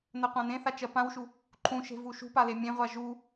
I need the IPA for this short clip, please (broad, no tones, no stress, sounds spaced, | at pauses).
n ɜ qʷ ã n ẽ θ a t͡ʃ ɜ p ã w ʃ u | ǃʰ ũ ʃ e̤ v u ʃ ṳ p a l e mʲ ẽ ʁʷ a ʒ u